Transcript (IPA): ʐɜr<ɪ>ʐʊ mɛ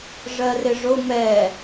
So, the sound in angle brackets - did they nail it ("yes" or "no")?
yes